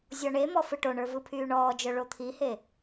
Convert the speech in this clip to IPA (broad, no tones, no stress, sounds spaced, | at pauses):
zʲ ɔ ɳ e m ɔ f ɯ ʈ o ɳ ə˞ v ɯ pʰ yː ɳ ɔː d͡ʒ œ ɭ o t̪ʰ i h e